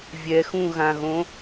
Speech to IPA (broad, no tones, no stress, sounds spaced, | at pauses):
vʲ ɛ x ũ ɣ ã ɣ õ